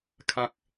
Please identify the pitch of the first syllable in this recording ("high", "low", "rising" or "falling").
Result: low